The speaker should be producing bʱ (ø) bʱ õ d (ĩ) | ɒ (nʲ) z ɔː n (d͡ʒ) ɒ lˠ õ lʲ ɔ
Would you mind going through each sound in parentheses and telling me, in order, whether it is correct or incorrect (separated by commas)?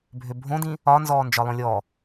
correct, correct, incorrect, correct